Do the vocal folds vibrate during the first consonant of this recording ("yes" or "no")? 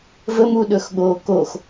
yes